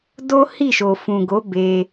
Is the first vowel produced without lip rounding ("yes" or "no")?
no